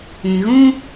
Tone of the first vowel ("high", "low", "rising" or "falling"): low